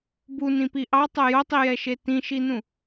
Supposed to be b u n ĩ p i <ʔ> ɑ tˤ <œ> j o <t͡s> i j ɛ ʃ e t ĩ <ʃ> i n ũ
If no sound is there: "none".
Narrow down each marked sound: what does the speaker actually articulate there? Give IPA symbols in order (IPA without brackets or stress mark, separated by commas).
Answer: ʔ, œ, tˤ, ʃ